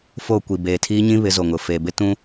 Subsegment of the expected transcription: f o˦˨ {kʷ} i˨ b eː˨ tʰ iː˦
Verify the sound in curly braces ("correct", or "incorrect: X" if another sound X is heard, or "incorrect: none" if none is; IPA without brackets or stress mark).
correct